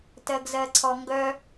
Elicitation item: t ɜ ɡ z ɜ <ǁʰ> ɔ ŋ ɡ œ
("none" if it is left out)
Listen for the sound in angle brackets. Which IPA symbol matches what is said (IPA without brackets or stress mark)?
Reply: ǀʰ